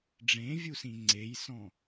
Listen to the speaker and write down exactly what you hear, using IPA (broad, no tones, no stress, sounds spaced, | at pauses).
ɖ͡ʐ ẽ vʲ u s ĩ ŋ͡ǀ e j s ɔ̃